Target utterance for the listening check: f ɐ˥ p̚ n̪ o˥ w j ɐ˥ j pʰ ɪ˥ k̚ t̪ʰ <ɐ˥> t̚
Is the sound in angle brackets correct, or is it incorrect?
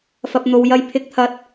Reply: correct